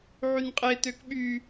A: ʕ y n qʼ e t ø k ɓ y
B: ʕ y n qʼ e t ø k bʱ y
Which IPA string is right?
A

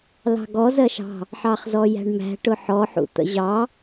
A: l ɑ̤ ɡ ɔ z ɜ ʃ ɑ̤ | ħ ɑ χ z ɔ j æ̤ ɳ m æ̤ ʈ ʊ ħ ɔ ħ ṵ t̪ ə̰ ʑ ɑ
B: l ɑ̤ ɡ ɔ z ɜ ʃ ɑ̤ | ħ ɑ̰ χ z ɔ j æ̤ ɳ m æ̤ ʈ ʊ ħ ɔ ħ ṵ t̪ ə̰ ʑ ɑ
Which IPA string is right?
A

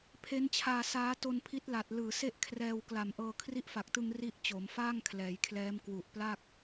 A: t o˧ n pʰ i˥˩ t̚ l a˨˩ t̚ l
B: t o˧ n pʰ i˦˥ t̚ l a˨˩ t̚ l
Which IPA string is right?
B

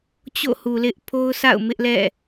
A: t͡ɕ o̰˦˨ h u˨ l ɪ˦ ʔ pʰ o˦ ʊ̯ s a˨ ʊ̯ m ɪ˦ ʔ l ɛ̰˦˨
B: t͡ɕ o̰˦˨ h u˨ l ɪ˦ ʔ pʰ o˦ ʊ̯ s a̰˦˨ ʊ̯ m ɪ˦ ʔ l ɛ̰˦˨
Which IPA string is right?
B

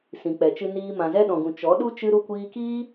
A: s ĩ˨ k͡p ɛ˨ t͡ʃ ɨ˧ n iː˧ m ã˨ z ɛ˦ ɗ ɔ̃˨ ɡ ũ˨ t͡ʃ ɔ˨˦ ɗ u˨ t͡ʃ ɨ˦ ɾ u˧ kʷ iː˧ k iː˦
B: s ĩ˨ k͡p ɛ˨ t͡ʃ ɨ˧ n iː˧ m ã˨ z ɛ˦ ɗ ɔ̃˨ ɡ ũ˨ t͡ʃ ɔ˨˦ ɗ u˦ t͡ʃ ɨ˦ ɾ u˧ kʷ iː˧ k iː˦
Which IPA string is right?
B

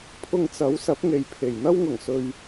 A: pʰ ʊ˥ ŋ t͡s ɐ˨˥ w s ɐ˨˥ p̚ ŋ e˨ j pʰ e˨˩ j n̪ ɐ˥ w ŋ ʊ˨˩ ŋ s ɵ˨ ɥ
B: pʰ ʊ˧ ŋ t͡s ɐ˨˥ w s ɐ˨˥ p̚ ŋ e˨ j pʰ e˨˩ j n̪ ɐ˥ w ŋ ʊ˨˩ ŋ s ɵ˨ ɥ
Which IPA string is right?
B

